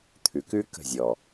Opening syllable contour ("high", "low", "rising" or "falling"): low